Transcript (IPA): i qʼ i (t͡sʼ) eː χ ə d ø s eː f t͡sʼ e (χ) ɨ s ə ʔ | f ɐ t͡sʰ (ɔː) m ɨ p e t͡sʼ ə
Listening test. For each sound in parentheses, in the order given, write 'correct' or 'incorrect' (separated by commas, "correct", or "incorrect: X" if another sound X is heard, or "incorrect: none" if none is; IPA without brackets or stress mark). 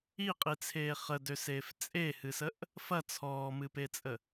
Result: incorrect: t͡sʰ, incorrect: h, correct